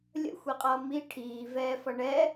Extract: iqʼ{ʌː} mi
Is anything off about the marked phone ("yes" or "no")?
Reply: no